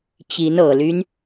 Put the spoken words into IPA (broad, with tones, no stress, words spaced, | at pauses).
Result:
t͡ɕi˧˥nɤ˨˩ly˦n